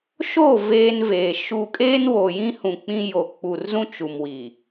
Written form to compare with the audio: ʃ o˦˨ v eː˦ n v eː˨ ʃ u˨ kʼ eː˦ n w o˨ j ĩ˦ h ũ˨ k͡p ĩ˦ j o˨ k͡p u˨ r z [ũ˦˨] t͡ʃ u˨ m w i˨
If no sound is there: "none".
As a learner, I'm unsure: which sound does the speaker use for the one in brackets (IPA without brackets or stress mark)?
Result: ũ˦